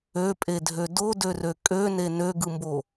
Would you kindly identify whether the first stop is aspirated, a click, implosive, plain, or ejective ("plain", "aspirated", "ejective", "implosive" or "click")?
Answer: ejective